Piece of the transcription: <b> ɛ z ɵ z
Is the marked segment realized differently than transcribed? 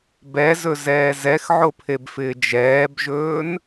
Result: no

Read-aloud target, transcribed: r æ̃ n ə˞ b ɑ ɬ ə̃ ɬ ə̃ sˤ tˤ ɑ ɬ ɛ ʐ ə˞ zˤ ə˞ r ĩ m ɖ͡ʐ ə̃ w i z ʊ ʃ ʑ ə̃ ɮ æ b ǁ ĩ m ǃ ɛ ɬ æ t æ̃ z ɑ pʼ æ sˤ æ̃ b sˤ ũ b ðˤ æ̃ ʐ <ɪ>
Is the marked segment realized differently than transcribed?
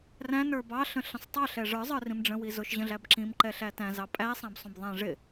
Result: no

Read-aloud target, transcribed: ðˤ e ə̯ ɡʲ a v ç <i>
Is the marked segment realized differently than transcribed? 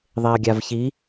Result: no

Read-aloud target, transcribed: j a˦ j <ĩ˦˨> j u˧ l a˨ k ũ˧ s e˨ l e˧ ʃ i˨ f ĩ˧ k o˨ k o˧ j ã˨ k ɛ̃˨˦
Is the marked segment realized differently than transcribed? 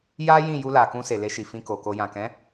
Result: no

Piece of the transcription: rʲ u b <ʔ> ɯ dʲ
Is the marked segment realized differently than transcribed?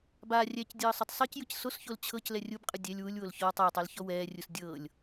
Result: yes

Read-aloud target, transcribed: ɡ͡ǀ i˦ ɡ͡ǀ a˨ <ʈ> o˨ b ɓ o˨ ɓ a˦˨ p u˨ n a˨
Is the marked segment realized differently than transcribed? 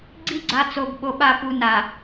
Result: yes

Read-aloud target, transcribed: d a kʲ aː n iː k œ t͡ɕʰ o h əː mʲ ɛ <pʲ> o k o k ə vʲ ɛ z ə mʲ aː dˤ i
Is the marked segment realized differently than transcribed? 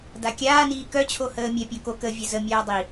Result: no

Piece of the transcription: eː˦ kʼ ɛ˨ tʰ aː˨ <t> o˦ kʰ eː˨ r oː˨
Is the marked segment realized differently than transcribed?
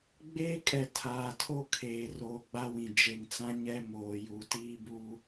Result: yes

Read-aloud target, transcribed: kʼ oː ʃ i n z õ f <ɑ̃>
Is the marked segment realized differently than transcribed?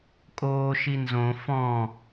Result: yes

